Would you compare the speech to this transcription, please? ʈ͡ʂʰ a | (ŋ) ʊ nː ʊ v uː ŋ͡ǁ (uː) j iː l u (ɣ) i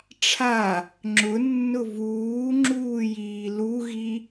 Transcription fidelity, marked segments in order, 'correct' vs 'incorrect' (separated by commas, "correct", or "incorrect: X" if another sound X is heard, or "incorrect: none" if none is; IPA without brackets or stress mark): incorrect: ŋ͡ǁ, correct, correct